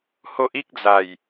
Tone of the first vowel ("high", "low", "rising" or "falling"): high